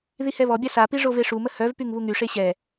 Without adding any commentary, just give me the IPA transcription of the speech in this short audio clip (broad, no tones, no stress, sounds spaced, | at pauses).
ð i h ɛ β ɔ bʲ a s a p i ʐ o v e ʂ u m ə h œ v p y ŋ β u ŋ y ʂ e ɕ ɛ